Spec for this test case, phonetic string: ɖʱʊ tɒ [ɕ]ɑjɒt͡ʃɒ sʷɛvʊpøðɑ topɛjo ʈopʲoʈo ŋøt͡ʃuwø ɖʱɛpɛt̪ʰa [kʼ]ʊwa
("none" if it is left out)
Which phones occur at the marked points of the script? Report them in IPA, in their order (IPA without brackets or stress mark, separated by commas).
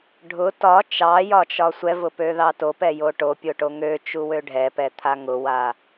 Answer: t͡ʃ, ŋ